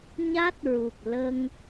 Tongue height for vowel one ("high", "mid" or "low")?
low